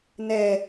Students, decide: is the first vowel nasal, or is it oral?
oral